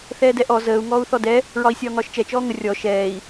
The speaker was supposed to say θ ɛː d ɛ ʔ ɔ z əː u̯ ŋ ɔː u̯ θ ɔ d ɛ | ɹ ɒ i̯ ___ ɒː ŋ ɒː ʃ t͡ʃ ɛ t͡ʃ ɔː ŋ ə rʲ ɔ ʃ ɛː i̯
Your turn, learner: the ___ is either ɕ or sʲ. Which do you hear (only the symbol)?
sʲ